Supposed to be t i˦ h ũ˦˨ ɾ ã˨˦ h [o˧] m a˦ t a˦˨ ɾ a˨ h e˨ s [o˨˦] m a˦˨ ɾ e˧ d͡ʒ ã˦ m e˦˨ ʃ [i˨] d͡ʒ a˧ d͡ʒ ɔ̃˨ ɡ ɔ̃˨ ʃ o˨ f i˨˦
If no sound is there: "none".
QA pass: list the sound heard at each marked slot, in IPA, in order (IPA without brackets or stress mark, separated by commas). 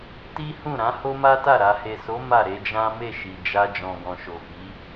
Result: o˦, o˨˦, i˨